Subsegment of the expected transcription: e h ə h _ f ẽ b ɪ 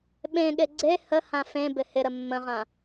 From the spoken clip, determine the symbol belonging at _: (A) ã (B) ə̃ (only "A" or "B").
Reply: A